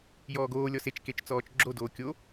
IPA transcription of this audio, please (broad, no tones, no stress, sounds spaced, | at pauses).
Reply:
j ɔː ɡ oː lʲ ɔ s e t͡ʃ k e t͡ʃ t͡s ɔː t͡ʃ ɡ͡ǁ o d oː kʲ o